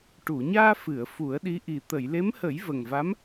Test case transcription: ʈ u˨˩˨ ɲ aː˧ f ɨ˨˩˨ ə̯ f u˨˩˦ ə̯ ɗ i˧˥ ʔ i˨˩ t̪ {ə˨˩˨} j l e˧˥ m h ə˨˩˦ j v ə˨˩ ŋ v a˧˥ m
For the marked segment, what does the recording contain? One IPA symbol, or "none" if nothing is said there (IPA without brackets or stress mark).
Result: ə˨˩˨